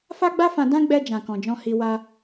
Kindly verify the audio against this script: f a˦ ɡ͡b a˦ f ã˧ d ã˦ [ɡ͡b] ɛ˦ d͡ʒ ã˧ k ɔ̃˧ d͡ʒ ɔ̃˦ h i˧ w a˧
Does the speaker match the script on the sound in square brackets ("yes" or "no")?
yes